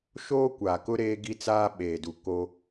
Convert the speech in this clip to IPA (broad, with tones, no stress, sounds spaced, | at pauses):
ʃ oː˦ kʷ aː˨ k ʊ˦ ɾ eː˦ ɡ i˦ t͡s aː˦ ɓ eː˨ d u˨ k o˦